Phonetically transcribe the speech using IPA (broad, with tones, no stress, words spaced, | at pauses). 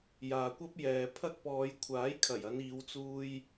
jaː˨kʷɐ˥p̚jɛː˨pʰɐ˥k̚ pɔː˨˧jkʷʰaː˨˥jkʰɐ˨˩jɐ˨˧n iː˨˧wt͡suː˧j